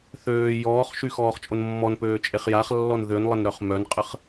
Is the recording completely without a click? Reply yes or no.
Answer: yes